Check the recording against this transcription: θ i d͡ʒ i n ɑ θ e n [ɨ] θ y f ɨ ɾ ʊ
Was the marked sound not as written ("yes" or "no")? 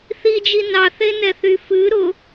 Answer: yes